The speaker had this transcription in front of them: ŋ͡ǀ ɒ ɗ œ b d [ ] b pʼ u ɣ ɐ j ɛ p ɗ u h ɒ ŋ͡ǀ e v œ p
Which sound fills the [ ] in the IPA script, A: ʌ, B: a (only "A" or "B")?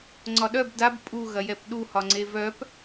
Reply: B